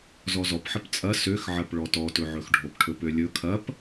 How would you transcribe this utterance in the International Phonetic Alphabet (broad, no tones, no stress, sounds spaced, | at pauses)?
z ɔ z ɔ p ħ ə p t͡sʼ ɐ s ø x ʕ ɐ p ɭ ɔ t ɔ t ɵ ʕ ɵ x ɖʱ o p ʈʰ ɵ p ø lʲ ɵ kʰ ɐ p